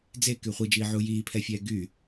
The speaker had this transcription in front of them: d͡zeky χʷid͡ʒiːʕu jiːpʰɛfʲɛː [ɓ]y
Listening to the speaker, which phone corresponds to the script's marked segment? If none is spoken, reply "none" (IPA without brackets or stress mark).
ɡ